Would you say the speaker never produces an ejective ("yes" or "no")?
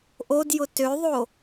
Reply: yes